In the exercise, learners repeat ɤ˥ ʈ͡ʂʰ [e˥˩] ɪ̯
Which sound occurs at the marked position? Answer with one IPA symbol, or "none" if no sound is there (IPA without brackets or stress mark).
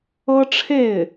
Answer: e˥˩